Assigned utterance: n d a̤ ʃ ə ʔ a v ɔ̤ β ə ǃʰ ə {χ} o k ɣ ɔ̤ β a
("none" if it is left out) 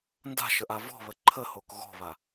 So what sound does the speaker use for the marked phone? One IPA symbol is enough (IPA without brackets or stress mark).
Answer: h